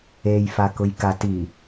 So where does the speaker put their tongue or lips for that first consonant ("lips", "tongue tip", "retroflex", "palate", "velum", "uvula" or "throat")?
palate